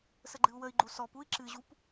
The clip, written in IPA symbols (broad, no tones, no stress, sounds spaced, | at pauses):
s ə ɡ͡ǃ ɨ u̯ w ə i̯ ɡ͡ǃ u s ɔ p u i̯ ǁ ɨ ʑ u p